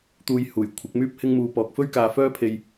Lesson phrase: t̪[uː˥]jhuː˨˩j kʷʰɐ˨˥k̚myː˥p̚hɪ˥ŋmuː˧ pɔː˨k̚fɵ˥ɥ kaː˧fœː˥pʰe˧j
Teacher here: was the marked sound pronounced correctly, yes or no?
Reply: no